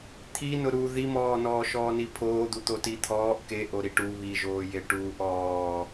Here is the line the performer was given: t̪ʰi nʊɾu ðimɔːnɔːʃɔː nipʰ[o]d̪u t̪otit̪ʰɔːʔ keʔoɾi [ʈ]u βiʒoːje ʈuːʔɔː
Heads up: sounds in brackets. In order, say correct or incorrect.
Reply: incorrect: oː, correct

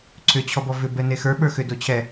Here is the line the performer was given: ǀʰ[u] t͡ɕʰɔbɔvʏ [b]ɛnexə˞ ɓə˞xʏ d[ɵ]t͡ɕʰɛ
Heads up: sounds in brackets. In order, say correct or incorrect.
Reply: incorrect: ʏ, correct, incorrect: o

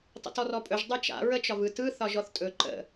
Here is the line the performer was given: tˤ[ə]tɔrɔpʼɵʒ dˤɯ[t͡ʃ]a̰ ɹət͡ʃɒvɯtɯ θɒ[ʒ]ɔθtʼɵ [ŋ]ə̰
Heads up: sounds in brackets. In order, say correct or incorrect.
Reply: incorrect: ə̰, correct, correct, incorrect: ǃ

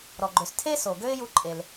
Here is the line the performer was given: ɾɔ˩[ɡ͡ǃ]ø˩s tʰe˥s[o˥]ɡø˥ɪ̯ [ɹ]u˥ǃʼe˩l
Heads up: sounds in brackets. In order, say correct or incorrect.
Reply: correct, incorrect: o˩, incorrect: j

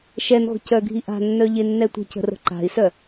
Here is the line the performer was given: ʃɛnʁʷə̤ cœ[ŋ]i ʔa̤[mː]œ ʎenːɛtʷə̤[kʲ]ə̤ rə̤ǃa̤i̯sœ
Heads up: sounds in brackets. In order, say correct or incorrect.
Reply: incorrect: ɡʱ, incorrect: nː, incorrect: c

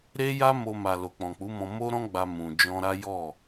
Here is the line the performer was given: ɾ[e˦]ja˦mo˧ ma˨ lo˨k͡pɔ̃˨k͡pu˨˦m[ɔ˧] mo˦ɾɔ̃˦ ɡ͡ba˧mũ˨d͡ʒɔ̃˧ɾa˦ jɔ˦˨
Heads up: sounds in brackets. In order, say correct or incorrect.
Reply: correct, incorrect: ɔ̃˧

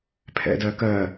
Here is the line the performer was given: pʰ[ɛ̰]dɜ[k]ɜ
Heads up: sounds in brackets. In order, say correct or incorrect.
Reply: correct, correct

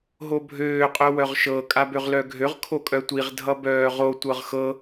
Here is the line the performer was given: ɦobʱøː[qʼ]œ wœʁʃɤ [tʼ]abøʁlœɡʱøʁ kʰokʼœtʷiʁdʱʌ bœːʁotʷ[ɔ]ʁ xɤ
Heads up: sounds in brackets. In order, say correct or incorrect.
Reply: correct, incorrect: kʼ, incorrect: ɤ

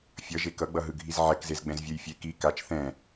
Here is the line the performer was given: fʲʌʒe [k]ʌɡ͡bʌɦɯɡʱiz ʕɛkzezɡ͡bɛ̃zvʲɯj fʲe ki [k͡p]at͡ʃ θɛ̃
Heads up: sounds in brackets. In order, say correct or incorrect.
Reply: correct, incorrect: k

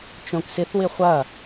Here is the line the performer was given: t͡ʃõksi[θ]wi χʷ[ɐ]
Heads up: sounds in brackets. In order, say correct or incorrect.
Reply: correct, correct

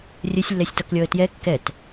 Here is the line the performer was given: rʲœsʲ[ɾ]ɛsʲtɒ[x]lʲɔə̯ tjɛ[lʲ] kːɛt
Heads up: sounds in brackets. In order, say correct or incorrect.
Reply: incorrect: lː, incorrect: k, incorrect: none

